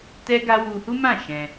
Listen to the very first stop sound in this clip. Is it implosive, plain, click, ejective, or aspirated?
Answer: plain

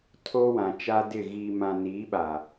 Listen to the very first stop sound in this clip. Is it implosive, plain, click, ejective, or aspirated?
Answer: aspirated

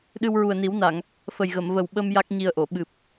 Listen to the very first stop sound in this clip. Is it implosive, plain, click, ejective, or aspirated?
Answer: implosive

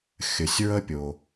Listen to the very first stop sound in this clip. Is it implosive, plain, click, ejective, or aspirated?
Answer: plain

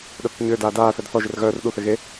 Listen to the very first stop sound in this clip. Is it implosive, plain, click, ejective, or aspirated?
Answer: implosive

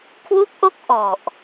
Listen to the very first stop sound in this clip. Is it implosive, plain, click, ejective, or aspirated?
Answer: aspirated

